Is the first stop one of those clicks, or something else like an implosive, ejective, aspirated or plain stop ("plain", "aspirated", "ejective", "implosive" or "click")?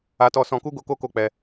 plain